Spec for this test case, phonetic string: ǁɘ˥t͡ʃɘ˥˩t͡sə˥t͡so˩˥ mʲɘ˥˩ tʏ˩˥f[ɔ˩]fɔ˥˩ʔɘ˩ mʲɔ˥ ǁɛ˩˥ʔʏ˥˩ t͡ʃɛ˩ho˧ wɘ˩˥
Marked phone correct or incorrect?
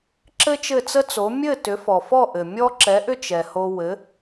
correct